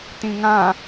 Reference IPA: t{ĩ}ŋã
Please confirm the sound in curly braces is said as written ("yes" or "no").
yes